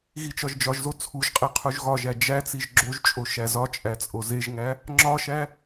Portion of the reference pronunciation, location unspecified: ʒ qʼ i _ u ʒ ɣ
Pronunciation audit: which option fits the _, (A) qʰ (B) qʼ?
A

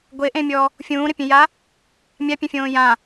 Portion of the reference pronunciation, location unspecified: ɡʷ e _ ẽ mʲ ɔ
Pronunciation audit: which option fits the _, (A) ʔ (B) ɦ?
A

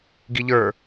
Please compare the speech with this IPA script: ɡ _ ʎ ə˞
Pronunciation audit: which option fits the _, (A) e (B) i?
B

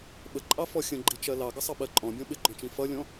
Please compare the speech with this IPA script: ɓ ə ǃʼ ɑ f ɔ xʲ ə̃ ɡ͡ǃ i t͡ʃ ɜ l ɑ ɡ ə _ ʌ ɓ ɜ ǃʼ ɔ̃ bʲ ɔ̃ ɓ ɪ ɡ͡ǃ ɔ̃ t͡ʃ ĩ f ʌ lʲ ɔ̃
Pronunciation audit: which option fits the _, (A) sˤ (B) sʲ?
A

